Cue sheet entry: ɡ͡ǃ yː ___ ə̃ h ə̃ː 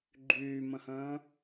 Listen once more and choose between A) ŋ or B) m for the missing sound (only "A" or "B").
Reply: B